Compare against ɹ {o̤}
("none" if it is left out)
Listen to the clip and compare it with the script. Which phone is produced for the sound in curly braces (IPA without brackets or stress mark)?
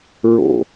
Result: o̰